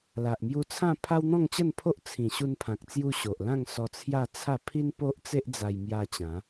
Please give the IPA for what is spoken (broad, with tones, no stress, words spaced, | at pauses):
la˨ʔmju˧t͡sʰã˥˧pʰa˦w n̪ɔ̃˥˧ŋt͡ɕə˥˧npʰo˦ʔ t͡sʰĩ˨˩ ɕu˧npʰã˨k̚t͡sju˧ ɕo˨ʔlã˥˧ŋ sɔ˧t͡sʰja˥˧ t͡sʰa˥˧ pʰi˦npo˦ʔt͡se˦ʔd͡za˧j mja˧ t͡ɕã˨˦